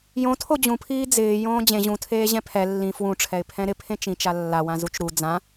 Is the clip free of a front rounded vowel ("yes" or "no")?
yes